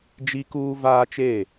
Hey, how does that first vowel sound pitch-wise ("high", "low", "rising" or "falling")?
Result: high